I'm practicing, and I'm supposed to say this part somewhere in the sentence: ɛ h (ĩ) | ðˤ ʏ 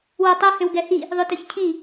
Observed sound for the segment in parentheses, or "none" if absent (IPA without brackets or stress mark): i